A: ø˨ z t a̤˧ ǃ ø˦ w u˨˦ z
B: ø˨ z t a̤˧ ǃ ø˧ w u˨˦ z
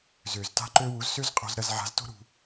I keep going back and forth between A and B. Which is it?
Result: B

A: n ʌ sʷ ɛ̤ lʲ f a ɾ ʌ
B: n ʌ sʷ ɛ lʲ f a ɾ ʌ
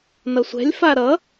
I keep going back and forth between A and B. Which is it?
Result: A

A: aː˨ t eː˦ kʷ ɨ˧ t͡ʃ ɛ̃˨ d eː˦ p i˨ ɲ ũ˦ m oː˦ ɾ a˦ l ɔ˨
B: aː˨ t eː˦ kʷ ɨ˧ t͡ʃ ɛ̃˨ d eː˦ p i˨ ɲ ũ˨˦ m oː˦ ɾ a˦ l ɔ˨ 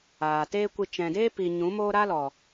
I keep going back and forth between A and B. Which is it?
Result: B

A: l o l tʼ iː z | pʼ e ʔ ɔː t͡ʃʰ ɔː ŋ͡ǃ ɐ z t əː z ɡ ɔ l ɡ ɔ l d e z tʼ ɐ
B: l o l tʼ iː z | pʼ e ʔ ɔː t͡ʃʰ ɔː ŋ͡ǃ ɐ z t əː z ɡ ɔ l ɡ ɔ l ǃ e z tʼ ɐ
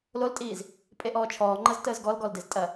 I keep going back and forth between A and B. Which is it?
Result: A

